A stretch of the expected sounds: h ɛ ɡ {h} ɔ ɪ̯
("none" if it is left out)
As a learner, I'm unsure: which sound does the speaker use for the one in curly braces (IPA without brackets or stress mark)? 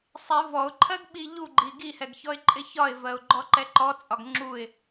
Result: ç